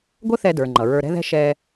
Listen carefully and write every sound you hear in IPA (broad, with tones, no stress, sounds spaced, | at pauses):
ɡʷ ə˥ θ ɛ˧ d ə˞˩ ŋ͡ǃ ʌ˩ ɹ ə˞˧ ɾ ɛ̤˥ ð ɛ̤˥ ʃ ɛ˧